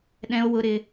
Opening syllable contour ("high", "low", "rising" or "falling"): high